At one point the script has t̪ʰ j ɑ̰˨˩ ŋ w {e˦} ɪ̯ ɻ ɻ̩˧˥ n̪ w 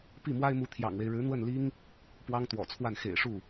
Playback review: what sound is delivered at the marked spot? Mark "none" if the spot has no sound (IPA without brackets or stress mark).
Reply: e˦